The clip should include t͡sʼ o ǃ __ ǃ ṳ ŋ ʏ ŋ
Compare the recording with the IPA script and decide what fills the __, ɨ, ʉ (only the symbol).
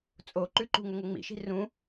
ʉ